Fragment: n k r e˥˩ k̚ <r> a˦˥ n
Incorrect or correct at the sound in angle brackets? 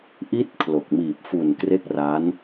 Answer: correct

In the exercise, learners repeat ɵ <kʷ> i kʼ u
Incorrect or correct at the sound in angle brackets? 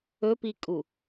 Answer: incorrect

